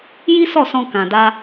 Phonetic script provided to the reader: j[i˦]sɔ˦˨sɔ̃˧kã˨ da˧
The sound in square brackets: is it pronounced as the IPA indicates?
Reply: yes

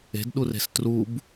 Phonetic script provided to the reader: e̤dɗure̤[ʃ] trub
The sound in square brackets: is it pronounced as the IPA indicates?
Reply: no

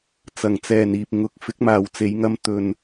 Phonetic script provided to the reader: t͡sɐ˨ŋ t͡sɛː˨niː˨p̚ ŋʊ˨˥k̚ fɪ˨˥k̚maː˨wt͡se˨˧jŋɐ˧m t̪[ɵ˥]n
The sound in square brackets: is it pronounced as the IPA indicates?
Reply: no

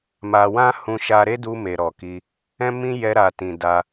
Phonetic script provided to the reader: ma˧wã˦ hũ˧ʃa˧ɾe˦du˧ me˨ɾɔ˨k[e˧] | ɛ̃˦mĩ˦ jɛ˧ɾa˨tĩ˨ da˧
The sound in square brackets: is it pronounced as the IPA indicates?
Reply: no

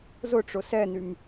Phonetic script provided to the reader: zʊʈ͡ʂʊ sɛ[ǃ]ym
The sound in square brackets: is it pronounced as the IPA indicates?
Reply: no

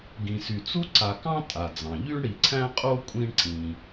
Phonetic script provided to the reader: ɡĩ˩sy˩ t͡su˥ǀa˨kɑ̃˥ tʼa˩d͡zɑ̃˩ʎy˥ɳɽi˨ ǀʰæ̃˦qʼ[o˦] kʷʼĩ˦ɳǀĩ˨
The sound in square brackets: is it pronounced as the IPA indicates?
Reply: yes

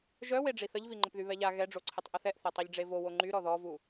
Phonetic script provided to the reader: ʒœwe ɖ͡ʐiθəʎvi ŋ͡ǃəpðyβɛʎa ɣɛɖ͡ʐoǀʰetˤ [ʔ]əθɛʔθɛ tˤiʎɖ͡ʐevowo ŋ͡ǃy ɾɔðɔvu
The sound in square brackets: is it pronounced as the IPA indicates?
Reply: yes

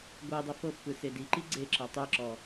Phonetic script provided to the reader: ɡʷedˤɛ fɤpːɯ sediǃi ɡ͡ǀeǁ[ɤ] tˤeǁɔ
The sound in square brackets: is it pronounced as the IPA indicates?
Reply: yes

